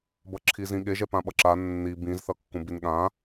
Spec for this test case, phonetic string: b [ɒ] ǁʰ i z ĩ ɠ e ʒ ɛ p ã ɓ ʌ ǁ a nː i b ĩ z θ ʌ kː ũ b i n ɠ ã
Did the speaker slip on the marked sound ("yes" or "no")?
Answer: yes